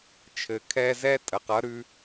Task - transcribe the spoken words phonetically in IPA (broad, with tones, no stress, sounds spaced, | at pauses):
t͡ʃʰ ɘ˨ kʰ ɛ˧ z ɛ˦ tʼ ə˨ q ʌ˨˦ ɾ ʉ˧